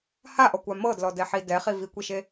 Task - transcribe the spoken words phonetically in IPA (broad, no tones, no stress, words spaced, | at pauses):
haʔɔkʷa mɤdlɔdɛħi dɛχi vikʷiʃe